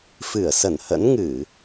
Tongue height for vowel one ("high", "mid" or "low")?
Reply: high